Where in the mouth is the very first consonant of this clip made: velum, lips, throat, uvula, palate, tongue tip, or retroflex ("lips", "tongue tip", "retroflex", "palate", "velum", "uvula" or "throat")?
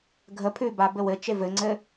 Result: velum